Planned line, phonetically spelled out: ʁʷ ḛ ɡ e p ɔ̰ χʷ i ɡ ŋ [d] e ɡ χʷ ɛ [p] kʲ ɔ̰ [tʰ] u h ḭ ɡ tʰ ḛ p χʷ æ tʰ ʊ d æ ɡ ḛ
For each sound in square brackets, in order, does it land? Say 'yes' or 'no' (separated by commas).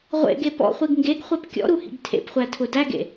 no, yes, no